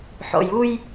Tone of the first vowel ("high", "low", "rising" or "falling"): low